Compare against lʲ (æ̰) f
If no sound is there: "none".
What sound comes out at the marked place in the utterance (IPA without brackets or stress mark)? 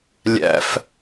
æ̰